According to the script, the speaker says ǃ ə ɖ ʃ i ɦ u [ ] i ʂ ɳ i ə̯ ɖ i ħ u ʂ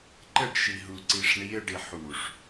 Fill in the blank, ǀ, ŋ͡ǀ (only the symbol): ǀ